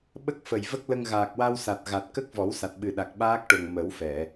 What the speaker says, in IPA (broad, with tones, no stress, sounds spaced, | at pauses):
ɓ ə˦˥ k̚ f ə˨˩ j v ə˦˥ k̚ l ə˧ ŋ ɣ aː˨˩ k̚ w a˧ w s a˨˩ t̚ ɣ a˨˩ t̚ k ə˦˥ k̚ v ɔ˨˩˦ w s a˨˩ t̚ ɓ ɨ˨˩ ɗ a˨˩ k̚ ɓ aː˦˥ k̚ ʈ o˨˩ ŋ m ə˨˩˦ w f ɛ˨˩˨